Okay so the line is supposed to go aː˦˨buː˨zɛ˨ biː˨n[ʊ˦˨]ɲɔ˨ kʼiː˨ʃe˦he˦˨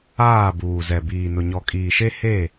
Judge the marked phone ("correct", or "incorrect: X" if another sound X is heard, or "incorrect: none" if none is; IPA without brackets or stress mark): incorrect: ʊ˨